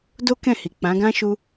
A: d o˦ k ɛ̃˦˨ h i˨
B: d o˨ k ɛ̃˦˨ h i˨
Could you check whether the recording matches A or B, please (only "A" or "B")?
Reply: A